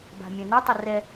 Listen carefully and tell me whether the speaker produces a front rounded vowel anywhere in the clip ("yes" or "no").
yes